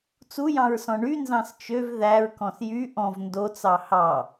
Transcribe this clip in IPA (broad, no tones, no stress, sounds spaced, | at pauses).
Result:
t͡s u j ɑ̃ ɹ s ɔ̃ ɳ y n z ɑ̃ s t͡ʃ ø v ð æ ɹ k ɔ̃ s j y ʔ ɔ̃ v n d o t͡s ɑ h ɑ